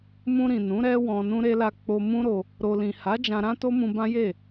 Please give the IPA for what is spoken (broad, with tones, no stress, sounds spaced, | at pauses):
m ũ˧ ɾ ĩ˨ n ũ˨˦ ɾ ɛ˦ w ɔ̃˧ n ũ˦ ɾ e˦ l a˧ k͡p o˧ m ũ˦ ɾ o˧ | ɾ o˧ l ĩ˨ h a˨˦ d͡ʒ ã˧ ɾ ã˦ t o˦ m ũ˧ b ã˦ j e˦˨